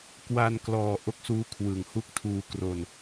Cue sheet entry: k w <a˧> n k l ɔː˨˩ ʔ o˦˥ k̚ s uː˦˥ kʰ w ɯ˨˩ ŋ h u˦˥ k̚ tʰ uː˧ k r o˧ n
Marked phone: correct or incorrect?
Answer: correct